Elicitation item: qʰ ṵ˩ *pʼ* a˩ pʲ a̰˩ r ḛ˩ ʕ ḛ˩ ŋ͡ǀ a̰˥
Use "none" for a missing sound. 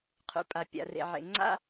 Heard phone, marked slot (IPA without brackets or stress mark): pʼ